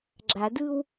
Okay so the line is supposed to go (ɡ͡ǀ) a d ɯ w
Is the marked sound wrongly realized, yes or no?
yes